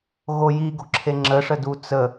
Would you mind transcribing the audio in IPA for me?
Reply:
ɣ o j i ɡ o̤ ǁʰ e ŋ͡ǁ ə ʂ ə d u t͡s ə

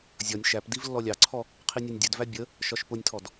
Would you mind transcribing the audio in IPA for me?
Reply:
zʲ ɒ nʲ ʃ æ p d i v lː ɔ lʲ ɑ ǀʰ ɔ | qʰ i nʲ ɑ nʲ dʲ ɛ d v æ bʲ ə | ʃ ɒ ʃ p ʊ nʲ tʰ ɔ d

